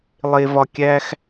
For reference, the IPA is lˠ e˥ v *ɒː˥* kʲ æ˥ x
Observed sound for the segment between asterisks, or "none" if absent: ɒ˥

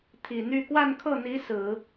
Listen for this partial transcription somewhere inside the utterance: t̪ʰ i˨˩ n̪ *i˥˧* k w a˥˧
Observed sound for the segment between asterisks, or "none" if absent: y˥˧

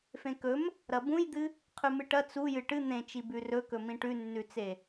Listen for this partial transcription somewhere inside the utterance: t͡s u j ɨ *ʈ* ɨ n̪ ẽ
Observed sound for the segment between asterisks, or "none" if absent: ʈ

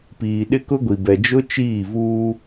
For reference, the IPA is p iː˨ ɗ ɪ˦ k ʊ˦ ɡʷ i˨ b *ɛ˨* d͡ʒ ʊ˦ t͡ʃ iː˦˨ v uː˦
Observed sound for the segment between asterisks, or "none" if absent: ɛ˨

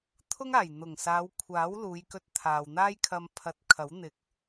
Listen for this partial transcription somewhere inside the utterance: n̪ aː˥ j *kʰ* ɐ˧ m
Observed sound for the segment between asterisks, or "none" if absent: kʰ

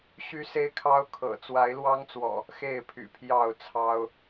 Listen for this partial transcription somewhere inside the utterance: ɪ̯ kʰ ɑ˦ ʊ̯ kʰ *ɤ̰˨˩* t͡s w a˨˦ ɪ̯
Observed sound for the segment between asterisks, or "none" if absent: ɤ̰˨˩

